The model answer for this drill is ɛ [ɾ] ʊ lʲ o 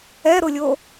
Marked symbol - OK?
yes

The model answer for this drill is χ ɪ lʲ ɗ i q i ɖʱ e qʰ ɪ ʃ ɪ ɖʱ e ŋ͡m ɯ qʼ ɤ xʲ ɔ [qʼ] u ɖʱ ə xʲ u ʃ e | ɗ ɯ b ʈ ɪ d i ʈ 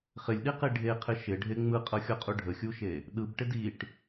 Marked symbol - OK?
yes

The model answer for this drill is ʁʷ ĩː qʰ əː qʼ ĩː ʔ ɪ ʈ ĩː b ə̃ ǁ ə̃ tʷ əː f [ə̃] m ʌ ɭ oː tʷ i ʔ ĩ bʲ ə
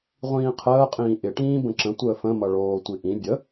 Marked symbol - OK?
yes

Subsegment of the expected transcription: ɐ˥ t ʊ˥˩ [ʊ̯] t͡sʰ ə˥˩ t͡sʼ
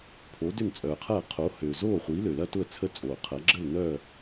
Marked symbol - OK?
no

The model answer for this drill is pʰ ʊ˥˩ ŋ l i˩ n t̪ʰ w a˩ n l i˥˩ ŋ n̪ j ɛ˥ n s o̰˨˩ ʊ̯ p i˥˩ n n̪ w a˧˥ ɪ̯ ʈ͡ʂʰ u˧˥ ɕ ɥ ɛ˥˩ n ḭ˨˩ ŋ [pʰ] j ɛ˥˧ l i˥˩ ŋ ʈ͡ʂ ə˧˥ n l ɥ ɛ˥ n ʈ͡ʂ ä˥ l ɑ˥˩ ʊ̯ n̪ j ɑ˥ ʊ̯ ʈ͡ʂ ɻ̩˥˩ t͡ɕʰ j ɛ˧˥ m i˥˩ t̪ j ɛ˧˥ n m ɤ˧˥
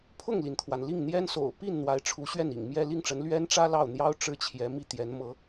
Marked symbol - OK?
no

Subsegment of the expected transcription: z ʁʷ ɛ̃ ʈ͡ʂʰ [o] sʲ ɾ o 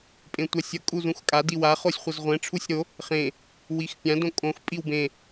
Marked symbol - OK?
no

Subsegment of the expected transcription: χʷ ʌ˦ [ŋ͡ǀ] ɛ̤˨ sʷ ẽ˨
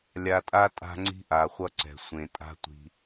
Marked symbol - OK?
no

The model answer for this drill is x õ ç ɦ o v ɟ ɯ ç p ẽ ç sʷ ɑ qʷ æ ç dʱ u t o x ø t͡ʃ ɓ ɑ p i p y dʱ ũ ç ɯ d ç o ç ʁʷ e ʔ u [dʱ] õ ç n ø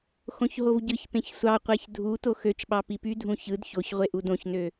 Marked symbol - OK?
no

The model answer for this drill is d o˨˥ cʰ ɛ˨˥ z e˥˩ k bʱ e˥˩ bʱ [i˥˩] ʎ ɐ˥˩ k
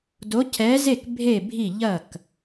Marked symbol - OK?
yes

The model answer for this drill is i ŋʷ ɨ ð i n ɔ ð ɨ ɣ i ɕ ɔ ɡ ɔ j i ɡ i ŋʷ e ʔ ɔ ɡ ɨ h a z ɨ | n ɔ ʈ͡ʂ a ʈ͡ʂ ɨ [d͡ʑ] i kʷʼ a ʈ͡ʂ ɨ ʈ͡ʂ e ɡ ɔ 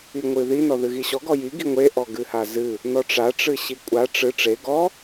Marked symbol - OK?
no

